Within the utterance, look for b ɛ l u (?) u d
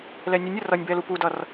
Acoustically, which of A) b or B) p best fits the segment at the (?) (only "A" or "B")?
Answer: B